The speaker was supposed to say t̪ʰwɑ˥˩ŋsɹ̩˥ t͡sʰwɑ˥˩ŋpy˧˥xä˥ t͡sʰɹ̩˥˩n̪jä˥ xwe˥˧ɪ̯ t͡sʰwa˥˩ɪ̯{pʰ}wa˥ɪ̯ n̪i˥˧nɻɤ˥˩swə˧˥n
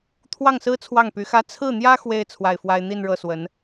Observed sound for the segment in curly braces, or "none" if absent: f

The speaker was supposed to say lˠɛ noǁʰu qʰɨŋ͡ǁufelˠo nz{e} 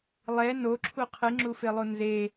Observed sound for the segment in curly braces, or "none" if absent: e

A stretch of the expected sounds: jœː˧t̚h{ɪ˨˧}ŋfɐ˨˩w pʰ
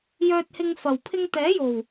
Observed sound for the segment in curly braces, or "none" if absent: ɪ˧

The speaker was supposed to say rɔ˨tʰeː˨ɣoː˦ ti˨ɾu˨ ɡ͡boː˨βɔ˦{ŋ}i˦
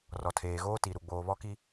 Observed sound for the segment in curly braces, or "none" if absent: k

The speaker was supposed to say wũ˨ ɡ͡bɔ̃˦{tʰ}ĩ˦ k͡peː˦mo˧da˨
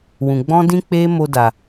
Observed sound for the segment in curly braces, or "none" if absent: d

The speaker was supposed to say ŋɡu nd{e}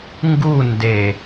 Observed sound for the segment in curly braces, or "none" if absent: e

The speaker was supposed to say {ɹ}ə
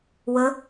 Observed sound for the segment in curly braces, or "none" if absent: w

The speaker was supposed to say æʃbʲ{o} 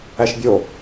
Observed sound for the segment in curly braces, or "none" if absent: o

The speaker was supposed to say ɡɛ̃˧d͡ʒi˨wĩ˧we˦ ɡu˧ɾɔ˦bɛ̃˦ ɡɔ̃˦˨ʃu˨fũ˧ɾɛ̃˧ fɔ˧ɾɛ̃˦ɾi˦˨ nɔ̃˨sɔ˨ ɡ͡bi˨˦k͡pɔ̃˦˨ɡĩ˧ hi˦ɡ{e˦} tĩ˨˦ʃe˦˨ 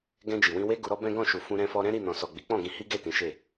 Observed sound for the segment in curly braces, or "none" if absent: e˦˨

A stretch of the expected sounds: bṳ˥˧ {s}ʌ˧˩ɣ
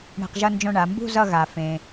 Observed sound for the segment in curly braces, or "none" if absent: z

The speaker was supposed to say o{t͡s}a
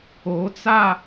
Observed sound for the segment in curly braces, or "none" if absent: t͡s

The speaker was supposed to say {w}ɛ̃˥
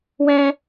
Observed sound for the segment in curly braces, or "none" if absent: w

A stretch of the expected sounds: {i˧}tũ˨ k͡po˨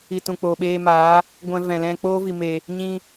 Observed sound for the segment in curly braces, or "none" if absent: i˨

